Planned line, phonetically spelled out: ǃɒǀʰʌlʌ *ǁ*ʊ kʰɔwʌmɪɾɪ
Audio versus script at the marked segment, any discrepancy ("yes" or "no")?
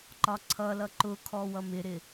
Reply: yes